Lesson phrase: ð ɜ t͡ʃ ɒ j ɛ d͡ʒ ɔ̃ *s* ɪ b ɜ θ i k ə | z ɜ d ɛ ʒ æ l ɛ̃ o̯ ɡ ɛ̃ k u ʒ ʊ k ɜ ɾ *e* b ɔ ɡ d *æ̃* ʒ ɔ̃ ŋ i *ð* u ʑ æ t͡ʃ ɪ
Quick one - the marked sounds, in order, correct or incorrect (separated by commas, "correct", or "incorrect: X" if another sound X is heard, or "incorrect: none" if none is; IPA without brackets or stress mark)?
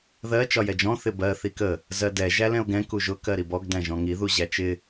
incorrect: θ, incorrect: i, correct, correct